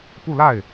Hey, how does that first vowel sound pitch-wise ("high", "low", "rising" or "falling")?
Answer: falling